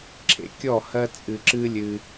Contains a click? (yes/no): yes